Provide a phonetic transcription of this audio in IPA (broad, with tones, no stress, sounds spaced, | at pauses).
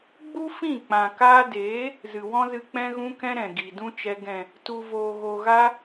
ɡ͡b u˦ f ĩ˦˨ k͡p ã˨ k aː˧ d eː˨˦ | z ɨ˨ w ɔ̃˦ z ɨ˧ k͡p ɛ̃˧ ɣ ũ˧ k ɛ̃˧ ɾ ɛ̃˨ ɡ i˨ d ũ˦ t͡ʃ ɛ˧ ɡ ɛ̃˨ | t u˨ v oː˨ ɣ o˨ ɣ a˧